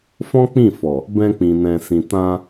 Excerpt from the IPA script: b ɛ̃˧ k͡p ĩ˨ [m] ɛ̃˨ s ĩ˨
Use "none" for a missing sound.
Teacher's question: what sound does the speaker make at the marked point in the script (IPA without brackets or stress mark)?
n